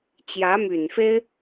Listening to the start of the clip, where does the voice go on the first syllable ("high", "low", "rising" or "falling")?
rising